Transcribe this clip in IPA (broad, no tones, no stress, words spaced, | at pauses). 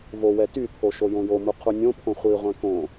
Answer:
vowɛ tyt̪ʰo ʃojõjomu qʰunʲõpʰõ χʷiʁʷɛ̃ kõ